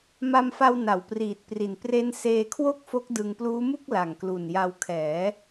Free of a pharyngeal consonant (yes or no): yes